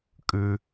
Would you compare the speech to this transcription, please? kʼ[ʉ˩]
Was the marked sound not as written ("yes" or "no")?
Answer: no